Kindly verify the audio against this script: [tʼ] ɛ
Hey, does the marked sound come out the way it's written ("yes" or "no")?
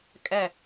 no